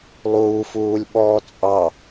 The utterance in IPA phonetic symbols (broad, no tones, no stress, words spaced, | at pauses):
lˠuːfuːlʲɓɔː t͡sʼɑ